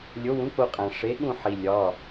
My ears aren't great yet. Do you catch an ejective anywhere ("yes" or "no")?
yes